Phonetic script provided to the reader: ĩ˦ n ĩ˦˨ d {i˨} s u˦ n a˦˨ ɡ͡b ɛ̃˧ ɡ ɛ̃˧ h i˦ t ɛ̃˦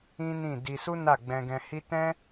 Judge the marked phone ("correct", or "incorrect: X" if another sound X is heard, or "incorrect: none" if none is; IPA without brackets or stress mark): incorrect: i˧